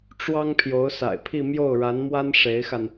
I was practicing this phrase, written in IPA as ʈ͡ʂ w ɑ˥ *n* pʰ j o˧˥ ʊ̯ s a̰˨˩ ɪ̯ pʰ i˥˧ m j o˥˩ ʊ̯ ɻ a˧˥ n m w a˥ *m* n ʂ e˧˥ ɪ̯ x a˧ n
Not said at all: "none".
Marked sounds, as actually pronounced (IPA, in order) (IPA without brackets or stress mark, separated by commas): ŋ, none